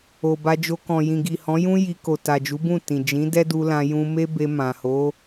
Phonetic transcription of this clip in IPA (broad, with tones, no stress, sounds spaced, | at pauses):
o˨ b a˧ d͡ʒ o˧ k ɔ̃˨ j ĩ˨ ɡ i˨ h ɔ̃˨˦ j ũ˦ j i˧ k o˨ t a˨ d͡ʒ u˨˦ b ũ˦˨ t ĩ˨ d͡ʒ ĩ˨˦ d ɛ˦ d u˧ l ã˧ j ũ˧ m e˦ b e˧ m ã˨ h o˨˦